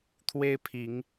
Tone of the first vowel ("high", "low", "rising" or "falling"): high